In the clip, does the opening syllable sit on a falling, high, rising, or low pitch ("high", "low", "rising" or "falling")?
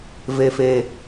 low